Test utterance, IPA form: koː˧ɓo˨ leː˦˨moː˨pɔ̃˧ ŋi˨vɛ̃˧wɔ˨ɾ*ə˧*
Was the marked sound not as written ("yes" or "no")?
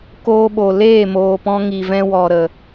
yes